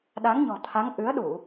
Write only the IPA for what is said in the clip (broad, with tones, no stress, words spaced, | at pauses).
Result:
ɗa˨˦ŋɲɔ̤˨˩t̪ʰa˨˦ŋ ʔɨ˨˦ə̯ɗu˧˩˨